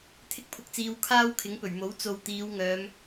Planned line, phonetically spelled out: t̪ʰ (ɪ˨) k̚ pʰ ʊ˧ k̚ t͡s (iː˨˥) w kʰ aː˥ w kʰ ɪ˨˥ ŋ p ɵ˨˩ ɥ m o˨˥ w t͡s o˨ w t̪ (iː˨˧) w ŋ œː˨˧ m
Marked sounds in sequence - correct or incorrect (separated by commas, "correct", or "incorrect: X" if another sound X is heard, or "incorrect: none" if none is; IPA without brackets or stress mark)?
incorrect: ɪ˥, incorrect: iː˧, correct